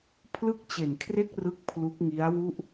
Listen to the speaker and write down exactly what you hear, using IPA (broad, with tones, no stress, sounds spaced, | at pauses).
pʰ l ɯ˥˩ k̚ t͡ɕ e˨˩ n kʰ r e˥˩ k̚ r ɯ˥˩ k̚ pʰ l u˦˥ k̚ ŋ i˦˥ a̯ w u˥˩ ʔ